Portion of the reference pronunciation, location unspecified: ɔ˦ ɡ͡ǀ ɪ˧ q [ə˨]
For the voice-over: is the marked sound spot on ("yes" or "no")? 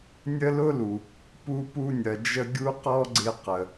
yes